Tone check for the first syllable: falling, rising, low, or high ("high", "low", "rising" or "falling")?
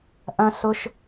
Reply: high